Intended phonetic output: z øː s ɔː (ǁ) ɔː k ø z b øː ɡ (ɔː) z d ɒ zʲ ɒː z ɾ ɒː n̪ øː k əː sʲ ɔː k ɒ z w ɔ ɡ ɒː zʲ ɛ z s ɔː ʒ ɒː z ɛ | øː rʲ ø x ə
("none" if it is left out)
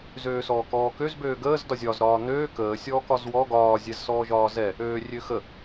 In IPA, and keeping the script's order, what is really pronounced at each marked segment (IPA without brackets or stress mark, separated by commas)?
k, əː